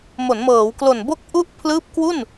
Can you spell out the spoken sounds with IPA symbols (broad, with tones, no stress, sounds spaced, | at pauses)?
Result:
m o˩˦ n m ɤː˩˦ w k l o˨˩ n b o˥˩ k̚ ʔ u˥˩ ʔ pʰ l ɯː˦˥ p̚ k w u˥˩ n